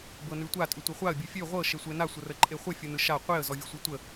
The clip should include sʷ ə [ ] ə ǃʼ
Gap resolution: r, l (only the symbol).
r